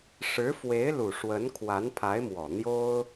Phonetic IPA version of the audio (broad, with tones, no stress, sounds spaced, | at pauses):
ʂ ɻ̩˧˥ f w e˧˥ ɪ̯ l u˨˩ ʂ w ə˧˥ n kʰ w a˧˥ n pʰ a˧˥ ɪ̯ m w ɔ˨˩ n̪ j o˥ ʊ̯